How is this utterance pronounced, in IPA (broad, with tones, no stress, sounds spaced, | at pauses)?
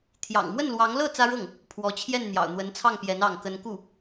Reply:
t̪ʰ j ɑ̰˨˩ ŋ m w ə˥˩ n l w ɑ˧˥ ŋ l ɤ˥˩ t͡s ä˥ ɻ ɤ˥˩ ŋ | pʰ w ɔ˧˥ t͡ɕʰ j ɛ˥˩ n n̪ j ɑ̰˨˩ ʊ̯ n̪ w ə˧˥ n t͡sʰ ɑ˥˩ ŋ p j ɛ˧˥ n ɑ˥˩ ŋ k ə˥ n k u˥˩